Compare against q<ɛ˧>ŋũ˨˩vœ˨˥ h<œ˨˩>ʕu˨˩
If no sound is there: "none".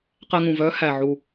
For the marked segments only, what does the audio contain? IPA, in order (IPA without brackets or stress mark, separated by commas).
ɛ˧, æ˨˩